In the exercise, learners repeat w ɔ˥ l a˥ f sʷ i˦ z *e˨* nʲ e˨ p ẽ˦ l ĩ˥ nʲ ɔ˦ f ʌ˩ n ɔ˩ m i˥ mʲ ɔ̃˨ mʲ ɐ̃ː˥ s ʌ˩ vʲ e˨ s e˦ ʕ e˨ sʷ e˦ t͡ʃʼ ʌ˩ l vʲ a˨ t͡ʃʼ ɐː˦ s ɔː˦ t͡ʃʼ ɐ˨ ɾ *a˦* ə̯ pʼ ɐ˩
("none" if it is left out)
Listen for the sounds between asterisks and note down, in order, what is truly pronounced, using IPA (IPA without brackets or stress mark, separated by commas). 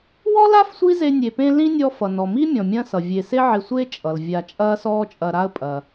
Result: e˦, a˦